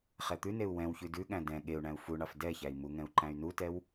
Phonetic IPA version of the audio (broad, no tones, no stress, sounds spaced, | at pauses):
χ ɛ t̪ ʉ n e u̯ w ɛ̃ w ç ʉ d ʉ ɠ æ̃ d ɛ̃ ɠ e u̯ ɳ æ̃ u̯ f u ɳ ɑ f d ɛ ç æ i̯ m u ŋ ɛ̃ u̯ ǃ æ̃ y̯ n u t ɛ w